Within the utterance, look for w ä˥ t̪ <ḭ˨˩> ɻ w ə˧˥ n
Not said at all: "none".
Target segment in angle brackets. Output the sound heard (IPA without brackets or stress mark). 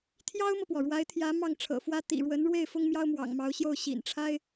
ḭ˨˩